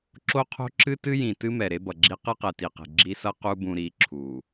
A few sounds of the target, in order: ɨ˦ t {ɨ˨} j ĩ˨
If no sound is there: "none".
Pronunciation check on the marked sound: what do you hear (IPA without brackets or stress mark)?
ɨ˦